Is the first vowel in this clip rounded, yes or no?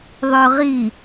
yes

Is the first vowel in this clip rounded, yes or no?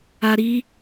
no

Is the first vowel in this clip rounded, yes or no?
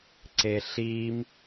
no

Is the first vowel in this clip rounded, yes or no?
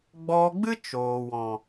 yes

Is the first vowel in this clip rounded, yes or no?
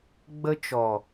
no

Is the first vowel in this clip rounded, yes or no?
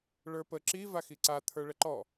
no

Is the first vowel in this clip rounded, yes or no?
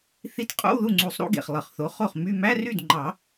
no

